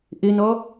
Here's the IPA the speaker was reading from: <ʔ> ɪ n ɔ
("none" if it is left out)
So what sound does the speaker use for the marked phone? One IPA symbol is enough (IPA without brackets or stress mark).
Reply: ʔ